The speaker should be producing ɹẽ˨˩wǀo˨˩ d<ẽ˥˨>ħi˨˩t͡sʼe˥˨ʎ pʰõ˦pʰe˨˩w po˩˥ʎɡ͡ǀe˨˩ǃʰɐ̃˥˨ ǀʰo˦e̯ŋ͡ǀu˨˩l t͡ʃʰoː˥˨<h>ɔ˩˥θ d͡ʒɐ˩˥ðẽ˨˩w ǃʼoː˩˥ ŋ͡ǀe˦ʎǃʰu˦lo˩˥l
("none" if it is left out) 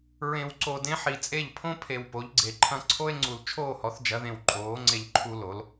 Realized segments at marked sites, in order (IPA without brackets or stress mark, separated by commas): ẽ˦, h